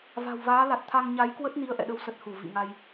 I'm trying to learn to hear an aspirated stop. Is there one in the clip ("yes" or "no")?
yes